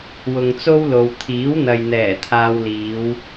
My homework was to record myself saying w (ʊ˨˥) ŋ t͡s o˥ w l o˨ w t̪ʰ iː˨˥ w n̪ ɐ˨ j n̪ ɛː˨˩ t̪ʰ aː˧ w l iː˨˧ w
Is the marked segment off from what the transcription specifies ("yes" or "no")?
yes